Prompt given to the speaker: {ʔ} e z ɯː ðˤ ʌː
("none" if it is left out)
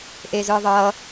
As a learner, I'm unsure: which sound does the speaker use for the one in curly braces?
ʔ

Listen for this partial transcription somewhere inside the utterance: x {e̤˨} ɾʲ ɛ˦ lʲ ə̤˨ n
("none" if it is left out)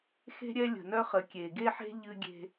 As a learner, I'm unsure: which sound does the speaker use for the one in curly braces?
e̤˦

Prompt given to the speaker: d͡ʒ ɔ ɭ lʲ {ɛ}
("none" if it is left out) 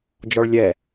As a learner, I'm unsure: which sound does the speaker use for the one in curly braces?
ɛ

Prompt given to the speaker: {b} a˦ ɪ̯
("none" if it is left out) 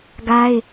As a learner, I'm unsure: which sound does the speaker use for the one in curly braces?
ɡ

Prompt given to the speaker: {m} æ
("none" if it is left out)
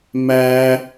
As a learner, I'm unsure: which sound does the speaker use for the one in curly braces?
m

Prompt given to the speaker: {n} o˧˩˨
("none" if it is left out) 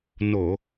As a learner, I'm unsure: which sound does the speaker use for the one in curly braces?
n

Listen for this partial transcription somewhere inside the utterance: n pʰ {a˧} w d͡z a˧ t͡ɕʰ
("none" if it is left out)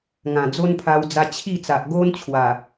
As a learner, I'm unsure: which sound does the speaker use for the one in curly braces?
a˧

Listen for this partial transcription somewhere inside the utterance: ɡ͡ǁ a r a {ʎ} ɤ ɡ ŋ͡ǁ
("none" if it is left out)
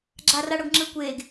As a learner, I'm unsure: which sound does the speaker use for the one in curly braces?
ɽ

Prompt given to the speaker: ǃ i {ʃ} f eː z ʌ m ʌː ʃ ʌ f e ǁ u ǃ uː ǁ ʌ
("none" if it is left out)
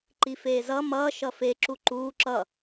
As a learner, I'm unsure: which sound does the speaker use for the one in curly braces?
none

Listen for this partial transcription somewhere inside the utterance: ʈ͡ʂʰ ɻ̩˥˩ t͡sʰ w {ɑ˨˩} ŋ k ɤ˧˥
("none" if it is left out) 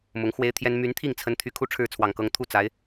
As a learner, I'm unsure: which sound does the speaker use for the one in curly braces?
ɑ˨˩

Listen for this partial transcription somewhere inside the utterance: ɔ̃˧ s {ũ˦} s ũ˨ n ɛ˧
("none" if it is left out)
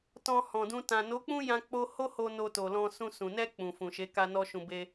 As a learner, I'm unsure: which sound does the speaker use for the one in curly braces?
ũ˧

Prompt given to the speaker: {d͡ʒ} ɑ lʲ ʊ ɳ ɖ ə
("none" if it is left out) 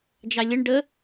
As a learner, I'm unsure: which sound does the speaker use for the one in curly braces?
d͡ʒ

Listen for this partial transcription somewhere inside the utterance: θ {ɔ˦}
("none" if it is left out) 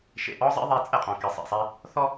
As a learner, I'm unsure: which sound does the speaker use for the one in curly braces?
ɔ˦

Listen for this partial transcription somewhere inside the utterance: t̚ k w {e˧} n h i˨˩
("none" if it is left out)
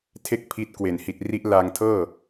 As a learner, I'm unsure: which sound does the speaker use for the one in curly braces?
e˨˩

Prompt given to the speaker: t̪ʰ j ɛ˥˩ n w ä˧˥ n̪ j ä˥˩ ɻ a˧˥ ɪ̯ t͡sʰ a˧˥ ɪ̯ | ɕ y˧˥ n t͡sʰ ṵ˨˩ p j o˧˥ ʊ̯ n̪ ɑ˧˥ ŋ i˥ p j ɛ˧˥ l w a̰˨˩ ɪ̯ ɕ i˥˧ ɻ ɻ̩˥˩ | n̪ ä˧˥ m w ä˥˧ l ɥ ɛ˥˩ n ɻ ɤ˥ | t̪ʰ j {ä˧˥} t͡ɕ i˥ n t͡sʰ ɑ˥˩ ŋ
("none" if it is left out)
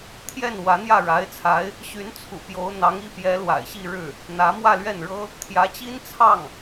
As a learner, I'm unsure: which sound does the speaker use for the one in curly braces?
ä˧˥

